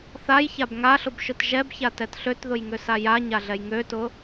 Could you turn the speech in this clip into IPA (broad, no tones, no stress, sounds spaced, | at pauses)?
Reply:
θ a j ç a b ŋ a ɬ ʊ b ʃ ʊ t ʒ ɛ b ç a t ɛ t ɬ ø t ð ʊ j ŋ ø s a j a ɲ a ɮ ɛ j ŋ ø t ʊ